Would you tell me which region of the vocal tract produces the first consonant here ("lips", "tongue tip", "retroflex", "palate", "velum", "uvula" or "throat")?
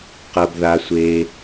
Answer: uvula